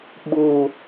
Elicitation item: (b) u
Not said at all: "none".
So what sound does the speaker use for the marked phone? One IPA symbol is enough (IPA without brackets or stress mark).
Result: ɓ